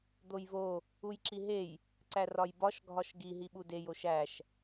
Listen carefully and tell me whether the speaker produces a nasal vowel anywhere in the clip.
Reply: no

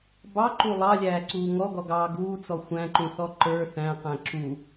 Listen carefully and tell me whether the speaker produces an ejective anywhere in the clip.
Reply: no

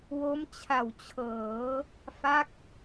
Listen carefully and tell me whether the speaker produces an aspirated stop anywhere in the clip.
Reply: yes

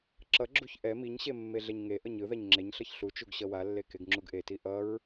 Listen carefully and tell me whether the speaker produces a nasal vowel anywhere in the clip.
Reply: no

